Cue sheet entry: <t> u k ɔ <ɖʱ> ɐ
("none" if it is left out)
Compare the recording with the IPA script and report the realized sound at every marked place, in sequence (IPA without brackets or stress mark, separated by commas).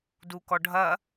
d, ɖʱ